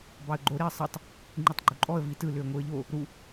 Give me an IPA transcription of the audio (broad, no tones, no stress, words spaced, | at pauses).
bɑə̯ɡ͡ǃo ɾeə̯sˤɯtˤ | ŋ͡ǃitˤɡ͡ǃuǃʼɔə̯ vitɯ lʏə̯ŋʷɯə̯ʎo | ɾu